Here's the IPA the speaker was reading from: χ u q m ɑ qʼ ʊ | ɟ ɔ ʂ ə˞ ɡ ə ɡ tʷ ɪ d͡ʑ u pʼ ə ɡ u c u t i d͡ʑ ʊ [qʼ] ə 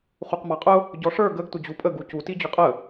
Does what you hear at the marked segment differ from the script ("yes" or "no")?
no